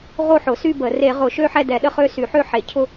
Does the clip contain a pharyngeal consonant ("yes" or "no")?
yes